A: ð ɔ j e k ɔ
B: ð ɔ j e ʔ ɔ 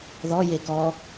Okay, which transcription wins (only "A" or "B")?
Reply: A